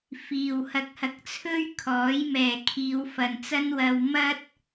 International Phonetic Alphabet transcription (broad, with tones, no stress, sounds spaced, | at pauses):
f iː˨ w h ɐ˧ k̚ h ɐ˧ k̚ t͡sʰ ɵ˥ ɥ kʰ ɔː˨˥ j m ɛː˨ kʰ iː˨˧ w f ɐ˨ n t͡s ɐ˥ n w ɐ˧ w m ɐ˥ t̚